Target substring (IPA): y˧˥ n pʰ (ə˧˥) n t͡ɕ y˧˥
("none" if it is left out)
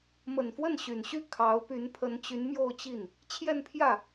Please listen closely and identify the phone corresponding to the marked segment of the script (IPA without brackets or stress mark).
ə˧˥